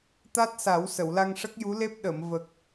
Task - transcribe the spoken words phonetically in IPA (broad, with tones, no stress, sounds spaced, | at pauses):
t̪ a˦˥ t̚ s a˨˩˦ w s ə˨˩˨ w l a˧ ŋ ʂ ə˦˥ k̚ j u˧˥ l e˦˥ p̚ ɗ ə˨˩˨ m v ə˨˩ k̚